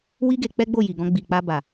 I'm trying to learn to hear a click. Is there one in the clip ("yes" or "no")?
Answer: no